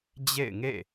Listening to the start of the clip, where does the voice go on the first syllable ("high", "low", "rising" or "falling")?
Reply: falling